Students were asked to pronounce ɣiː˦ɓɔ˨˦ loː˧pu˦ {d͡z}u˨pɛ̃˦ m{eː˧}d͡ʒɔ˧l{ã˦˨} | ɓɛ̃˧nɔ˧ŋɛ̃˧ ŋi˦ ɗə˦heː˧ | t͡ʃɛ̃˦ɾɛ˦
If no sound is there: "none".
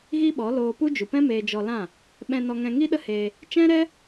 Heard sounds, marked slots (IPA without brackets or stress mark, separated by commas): d͡ʒ, eː˧, ã˦˨